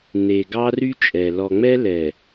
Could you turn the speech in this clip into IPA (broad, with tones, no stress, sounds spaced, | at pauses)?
n e˨ ɡ ɑ˦ r y˦ t͡ʃʼ ɛ˨ l ɔ˨ ŋ͡m ɛ˦ l ɛ˨